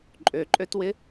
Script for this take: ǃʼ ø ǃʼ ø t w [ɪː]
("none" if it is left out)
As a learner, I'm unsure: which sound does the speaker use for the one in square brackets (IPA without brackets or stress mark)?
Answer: ɪ